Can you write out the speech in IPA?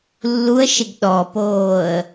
lː u ə̯ ʃ e ɡ ɗ ɔ p oː ə̯

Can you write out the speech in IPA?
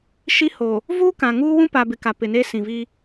ʃ i˦ h oː˨ | v uː˦ k ã˨ ŋ uː˦ w ũ˦ p a˨ b ɪ˨ k a˨ p ɪ˨ n eː˦ s ĩ˨ v i˦

